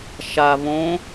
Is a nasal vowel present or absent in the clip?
present